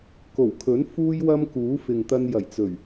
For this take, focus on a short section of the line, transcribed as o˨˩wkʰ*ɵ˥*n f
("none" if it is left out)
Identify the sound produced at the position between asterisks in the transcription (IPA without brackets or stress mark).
ɵ˨˥